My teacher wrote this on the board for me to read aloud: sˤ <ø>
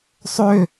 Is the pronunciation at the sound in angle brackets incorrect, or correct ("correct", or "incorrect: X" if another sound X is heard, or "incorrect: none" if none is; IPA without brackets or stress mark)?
correct